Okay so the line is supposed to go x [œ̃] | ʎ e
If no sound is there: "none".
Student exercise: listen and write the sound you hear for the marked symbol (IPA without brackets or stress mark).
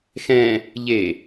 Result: ɛ̃